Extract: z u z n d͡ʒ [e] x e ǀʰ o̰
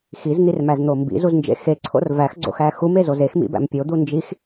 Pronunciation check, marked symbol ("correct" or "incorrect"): incorrect